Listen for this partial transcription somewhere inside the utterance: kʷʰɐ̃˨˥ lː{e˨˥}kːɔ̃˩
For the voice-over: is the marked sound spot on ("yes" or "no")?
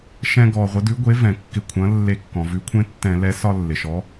no